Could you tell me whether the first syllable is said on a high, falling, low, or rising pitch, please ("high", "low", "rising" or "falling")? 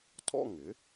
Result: falling